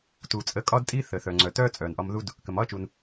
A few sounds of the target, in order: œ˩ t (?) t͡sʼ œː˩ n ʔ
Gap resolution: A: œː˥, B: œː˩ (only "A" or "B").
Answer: A